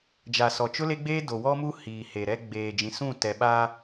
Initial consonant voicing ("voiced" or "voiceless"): voiced